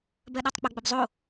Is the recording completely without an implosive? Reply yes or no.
no